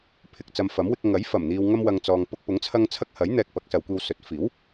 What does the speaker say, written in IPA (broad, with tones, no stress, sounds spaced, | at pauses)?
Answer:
pʰ ɪ˨ k̚ t͡s ɐ˧ m f ɐ˨˥ m w ɪ˧ k̚ ŋ ɐ˨˥ j f ɐ˨˩ m n̪ iː˨ w ŋ ɐ˧ m w ɐ˨ ŋ t͡s ɔː˨ ŋ p ʊ˧ k̚ p ʊ˨˥ ŋ t͡sʰ ɐ˥ ŋ t͡sʰ ɐ˥ k̚ h ɐ˨˥ j n̪ ɛː˧ k̚ p ɐ˨˥ k̚ s ɐ˨˧ w kʷ iː˧ w s ɵ˨˥ t̚ f iː˨˥ w